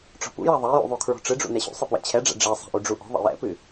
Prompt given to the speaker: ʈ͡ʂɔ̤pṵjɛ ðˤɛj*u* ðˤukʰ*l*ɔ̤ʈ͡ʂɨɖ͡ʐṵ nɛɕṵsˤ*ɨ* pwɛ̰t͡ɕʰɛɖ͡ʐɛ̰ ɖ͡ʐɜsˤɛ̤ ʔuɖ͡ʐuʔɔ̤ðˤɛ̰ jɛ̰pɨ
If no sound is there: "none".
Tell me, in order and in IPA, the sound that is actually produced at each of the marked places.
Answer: ṵ, ɹ, ɨ

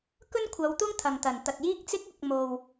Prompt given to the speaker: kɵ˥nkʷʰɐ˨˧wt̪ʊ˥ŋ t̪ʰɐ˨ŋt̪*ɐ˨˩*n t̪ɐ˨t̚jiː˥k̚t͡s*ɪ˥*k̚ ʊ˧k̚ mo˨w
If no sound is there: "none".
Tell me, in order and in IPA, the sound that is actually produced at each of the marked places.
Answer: ɐ˨˩, ɪ˥

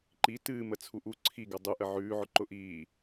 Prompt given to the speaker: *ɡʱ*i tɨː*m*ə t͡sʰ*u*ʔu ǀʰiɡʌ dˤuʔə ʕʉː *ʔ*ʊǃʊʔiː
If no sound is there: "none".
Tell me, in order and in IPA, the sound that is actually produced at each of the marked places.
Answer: ǃ, m, u, ʕ

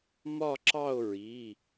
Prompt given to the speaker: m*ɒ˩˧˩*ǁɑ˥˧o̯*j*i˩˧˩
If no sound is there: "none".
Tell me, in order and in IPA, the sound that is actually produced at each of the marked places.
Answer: ɒ˥˧, ɹ

